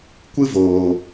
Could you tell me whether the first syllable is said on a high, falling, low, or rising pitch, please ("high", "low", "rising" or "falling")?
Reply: high